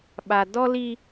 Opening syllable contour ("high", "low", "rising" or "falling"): low